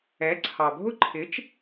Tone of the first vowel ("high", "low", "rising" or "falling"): rising